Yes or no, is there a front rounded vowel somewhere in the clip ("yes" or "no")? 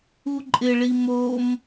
no